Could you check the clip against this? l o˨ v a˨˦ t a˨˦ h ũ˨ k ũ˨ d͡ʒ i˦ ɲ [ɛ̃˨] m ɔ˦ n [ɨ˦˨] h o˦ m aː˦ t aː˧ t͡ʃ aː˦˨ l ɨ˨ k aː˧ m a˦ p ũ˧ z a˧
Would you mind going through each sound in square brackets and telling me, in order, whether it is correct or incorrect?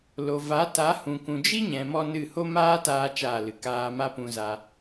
correct, correct

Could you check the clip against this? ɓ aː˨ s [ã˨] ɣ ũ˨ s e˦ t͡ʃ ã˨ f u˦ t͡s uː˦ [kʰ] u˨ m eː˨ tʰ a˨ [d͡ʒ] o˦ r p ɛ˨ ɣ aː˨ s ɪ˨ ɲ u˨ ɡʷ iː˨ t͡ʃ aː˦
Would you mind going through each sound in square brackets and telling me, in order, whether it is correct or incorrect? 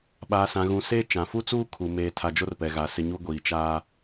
correct, correct, correct

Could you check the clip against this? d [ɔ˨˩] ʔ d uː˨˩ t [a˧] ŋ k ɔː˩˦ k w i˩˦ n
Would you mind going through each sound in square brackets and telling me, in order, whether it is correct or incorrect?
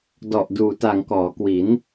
correct, incorrect: a˨˩

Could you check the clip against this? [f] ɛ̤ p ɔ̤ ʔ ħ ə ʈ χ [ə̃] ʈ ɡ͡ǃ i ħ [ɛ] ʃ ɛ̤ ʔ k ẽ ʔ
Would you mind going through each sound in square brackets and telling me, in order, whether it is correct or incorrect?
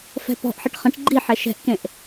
correct, correct, correct

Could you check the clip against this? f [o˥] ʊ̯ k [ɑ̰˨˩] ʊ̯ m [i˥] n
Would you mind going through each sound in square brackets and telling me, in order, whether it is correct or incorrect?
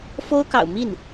correct, correct, incorrect: i˥˩

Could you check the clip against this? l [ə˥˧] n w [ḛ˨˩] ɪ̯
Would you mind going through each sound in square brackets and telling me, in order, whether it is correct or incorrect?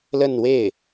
correct, incorrect: e˥˩

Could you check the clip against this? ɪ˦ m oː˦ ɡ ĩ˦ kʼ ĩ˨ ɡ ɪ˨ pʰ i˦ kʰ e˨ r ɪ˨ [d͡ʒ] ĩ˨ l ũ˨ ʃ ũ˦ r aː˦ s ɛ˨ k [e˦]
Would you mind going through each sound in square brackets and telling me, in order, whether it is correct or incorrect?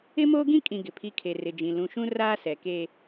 correct, correct

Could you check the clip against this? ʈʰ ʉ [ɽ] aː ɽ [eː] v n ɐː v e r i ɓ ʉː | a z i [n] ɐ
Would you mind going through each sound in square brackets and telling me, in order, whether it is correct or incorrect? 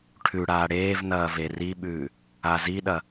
correct, correct, incorrect: ɗ

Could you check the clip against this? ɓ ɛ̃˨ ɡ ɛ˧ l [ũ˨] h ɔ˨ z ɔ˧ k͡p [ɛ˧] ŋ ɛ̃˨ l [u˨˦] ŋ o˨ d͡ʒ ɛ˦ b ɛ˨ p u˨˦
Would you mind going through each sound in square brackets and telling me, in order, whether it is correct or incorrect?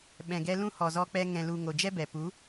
incorrect: ũ˦, correct, incorrect: u˨

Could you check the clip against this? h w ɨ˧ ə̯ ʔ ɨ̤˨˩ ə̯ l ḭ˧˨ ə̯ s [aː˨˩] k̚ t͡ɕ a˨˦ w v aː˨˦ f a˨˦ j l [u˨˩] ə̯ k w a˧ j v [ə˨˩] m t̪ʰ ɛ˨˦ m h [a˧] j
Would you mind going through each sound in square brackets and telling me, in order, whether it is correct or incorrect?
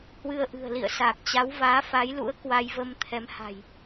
correct, incorrect: ṵ˧˥, incorrect: ə˧, incorrect: a̤˨˩

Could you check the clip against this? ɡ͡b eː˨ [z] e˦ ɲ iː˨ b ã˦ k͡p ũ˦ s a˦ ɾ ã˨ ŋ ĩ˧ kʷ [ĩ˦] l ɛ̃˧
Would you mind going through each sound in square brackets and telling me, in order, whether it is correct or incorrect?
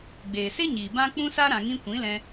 incorrect: s, incorrect: ĩ˨˦

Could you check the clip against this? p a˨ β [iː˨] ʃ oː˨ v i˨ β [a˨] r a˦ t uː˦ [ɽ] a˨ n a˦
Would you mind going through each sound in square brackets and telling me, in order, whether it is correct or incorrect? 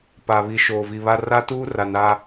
incorrect: i˨, incorrect: a˦, incorrect: r

